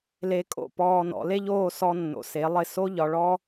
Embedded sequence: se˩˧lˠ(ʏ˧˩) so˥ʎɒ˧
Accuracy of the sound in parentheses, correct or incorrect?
incorrect: ɪ˧˩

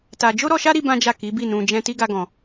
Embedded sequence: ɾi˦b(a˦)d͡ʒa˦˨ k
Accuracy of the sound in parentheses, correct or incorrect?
incorrect: ã˦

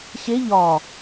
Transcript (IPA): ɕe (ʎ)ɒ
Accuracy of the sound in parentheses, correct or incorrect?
correct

